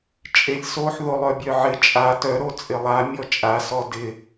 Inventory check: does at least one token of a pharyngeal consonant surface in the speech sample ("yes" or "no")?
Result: yes